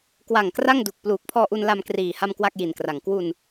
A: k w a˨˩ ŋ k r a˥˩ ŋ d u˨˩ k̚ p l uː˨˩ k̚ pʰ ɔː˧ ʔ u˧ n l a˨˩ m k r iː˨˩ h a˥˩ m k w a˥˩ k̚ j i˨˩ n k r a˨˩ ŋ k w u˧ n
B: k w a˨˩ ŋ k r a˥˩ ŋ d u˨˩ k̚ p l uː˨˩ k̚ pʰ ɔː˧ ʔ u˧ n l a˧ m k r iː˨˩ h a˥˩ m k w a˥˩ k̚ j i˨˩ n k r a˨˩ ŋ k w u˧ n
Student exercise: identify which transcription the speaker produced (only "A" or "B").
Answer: B